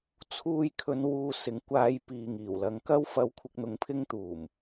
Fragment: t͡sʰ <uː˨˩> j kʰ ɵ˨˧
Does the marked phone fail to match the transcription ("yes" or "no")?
yes